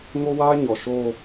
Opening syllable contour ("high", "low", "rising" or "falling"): high